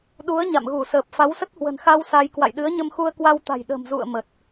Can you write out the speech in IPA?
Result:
ɗu˨˦ə̯ ɲa̰˧˨mɣu˧˩səː˨˩p̚ fa˨˦wsə˦˥t̚hwə̤˨˩nxa˧w sa˧j kwa̰˧˨jɗɨ˨˦ə̯ɲə˧mxu˧ə̯ kwa˧wt̪a̤˨˩j ɗə̤˨˩mzṵ˧˨ə̯ mə˨˩t̚

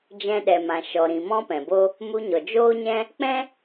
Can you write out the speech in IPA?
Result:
d͡ʒɛ̃˧ɗɛ˨ mã˨ʃɔ˨ɾĩ˨ mɔ̃˦pɛ̃˨bo˦ | mu˧ɲɔ˨d͡ʒoː˦ɲɛ̃˦ | k͡pɛ̃˦

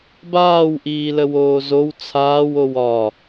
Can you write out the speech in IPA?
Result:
baːw ʔiːləwoːzow t͡sʰaːwow ɒ

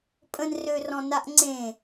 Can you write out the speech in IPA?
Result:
pʼə̃nrørɔ̃ naʔŋ͡ǀẽ

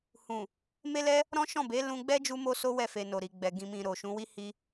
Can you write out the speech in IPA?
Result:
hũ˨ | me˦lɛ˦ | ɾɔ̃˦ʃɔ̃˦˨ be˨˦lũ˧ɡ͡bɛ˦ d͡ʒu˦mo˦ so˦wɛ˦˨fe˨ no˨ɾi˨ɡ͡bɛ˨ ɡĩ˨mĩ˨ ɾo˨ ʃũ˨˦wi˦ hi˦

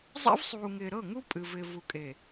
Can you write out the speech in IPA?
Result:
zˤḛ˦vsˤuː˨ŋɪː˨ ɾɤ˦˨ŋu˦ pʼɨ˨ vɪː˨ vu˨kʼe˨

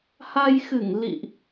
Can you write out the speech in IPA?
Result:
ha˧jxɨ˧˩ŋ lḭ˧˨ʔ

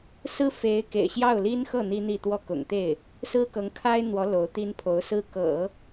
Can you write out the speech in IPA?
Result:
sɹ̩˥fe˧˥ɪ̯ kḛ˨˩ɪ̯ɕjɑ˥˩ʊ̯li˥nxɤ˥˩ n̪i˥n̪i˥˧t̪wɔ˥˩ kʊ̰˨˩ŋt̪e˥˩ɪ̯ | sɹ̩˥kɤ˧˥ŋkʰa˥ɪ̯n̪wɔ˧˥ lo˧˥ʊ̯t̪i˥npʰo˧˥ʊ̯sɹ̩˥ kɤ̰˨˩˦

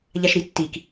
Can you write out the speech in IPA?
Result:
ʎaʃɾitːik

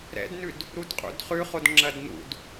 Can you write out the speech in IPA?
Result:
ɾɛ̰dnʉd | ɾudqʼṵdχʉχod ŋ͡ǁɐdnṵd

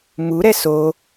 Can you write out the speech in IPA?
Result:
muɾɛ so

